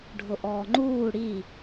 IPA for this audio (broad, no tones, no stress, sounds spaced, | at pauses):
ɖʱ ʊ ʔ ɔː ŋ͡ǃ uː ɽ i